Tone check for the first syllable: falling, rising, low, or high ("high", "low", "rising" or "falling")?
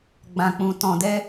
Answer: low